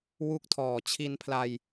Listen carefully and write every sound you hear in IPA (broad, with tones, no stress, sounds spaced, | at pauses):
w u˥˩ k̚ tʰ ɔː˨˩ t͡ɕʰ i˧ n pʰ l a˧ j